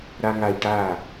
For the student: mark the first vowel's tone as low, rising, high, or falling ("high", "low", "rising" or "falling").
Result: low